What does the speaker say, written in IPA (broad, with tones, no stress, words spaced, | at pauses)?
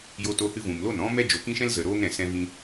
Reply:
jo˧to˧hɨ˧ vũ˨mlo˦˨n ɔ̃˦ mɛ˦d͡ʒo˨kĩ˦ʃɛ̃˦l zə˨ ɾoː˦ŋɾɛ̃˨ sɛ̃˧vĩ˧